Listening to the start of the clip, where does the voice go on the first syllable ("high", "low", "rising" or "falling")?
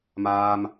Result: high